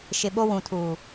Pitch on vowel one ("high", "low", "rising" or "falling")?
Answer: low